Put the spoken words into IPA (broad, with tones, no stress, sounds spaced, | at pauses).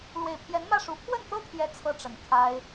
l w e˨˩ ɪ̯ pʰ j ɛ˧˥ n m ä˥˩ ʂ u˧˥ pʰ w ə˥˩ n t̪ ɤ˥ t̪ʰ j ɛ˧˥ t͡sʰ ɤ˥ ʈ͡ʂ ə˨˩ n kʰ a˥ ɪ̯